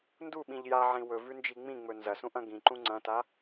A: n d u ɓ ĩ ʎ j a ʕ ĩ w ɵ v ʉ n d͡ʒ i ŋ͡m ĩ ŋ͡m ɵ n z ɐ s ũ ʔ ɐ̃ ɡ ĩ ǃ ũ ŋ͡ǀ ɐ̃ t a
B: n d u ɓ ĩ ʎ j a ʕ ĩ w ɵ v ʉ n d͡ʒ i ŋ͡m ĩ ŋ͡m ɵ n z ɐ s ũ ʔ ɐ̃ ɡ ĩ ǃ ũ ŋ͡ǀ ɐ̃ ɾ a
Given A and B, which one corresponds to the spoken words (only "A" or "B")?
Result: A